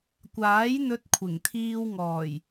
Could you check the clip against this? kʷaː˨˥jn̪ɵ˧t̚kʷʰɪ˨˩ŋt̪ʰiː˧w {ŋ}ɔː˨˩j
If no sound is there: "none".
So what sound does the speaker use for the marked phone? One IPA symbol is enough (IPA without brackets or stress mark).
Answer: ŋ